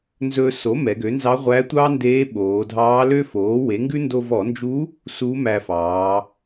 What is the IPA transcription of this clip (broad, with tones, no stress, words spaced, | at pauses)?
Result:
nzɵ˧so˩˥ mɛ˩˧ɡø˩˥nzɑ˧˥ ʁʷæ˧˥ tʷɑ˥ ndeː˧˥ɓoː˩˧dʱɑː˧˥lø˥ foː˩˥we˩˥ŋɡʉ˥ ndo˧vɔ˧˩˧nd͡ʒu˧˥ | su˧˥mæ˧fɑː˩˧